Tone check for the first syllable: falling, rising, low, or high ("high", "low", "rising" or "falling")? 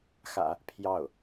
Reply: low